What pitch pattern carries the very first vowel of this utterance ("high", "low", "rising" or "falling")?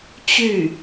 falling